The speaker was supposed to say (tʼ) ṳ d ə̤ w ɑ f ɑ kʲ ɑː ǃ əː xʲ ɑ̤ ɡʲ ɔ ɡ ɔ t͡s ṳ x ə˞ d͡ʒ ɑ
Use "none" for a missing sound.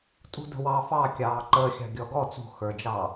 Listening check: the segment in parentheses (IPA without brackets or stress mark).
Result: tʼ